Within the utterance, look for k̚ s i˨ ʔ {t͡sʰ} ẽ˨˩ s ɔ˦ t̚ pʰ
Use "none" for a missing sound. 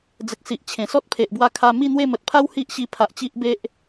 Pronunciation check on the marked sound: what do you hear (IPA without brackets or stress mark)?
t͡ɕʰ